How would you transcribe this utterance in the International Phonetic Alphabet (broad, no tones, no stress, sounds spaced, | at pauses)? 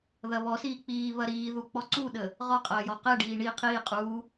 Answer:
ð ɐ β ɔ s iː k͡p iː β ɐ ɾ iː ð u k͡p ɔ ǀ u ɗ ə | ʁ ɔ qʼ ɐː j ɔ q ɛ ɖ iː ɳ i qʰ iː qʼ uː